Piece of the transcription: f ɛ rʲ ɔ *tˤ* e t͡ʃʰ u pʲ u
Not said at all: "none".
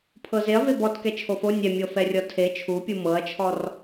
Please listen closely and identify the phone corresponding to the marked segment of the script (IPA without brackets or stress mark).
tʰ